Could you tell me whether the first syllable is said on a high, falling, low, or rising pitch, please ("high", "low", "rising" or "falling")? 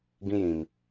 high